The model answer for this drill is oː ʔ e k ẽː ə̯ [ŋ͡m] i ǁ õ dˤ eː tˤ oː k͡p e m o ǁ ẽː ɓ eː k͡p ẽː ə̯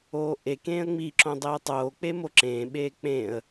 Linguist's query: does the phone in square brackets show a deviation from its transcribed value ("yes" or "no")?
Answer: no